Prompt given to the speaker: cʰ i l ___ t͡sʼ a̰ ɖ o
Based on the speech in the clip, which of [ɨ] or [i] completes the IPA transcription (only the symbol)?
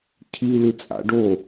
ɨ